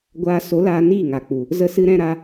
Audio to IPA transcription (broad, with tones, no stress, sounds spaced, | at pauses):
ɡʷ aː˧ s o˨˦ l aː˧ n iː˦˨ ŋ a˨ k͡p u˨ | z ə˦ s ɨ˦ ɾ ɛ̃˦ ɾ a˦